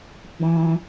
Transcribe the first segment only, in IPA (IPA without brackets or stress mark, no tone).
ɡ͡b